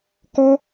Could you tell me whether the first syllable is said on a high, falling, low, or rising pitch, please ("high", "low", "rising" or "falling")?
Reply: high